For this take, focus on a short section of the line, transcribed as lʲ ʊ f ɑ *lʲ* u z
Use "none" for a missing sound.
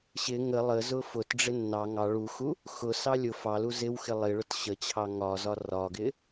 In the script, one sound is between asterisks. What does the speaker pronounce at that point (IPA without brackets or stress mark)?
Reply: l